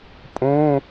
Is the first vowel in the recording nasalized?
yes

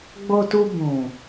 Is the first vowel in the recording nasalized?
no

